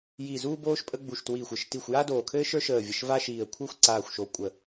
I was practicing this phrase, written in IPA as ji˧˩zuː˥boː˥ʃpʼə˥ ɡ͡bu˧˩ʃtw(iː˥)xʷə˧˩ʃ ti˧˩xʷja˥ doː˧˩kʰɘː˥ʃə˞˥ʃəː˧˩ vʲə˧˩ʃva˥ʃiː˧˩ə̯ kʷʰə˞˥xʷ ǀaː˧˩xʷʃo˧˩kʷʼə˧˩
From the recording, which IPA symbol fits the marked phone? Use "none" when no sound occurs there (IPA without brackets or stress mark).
iː˧˩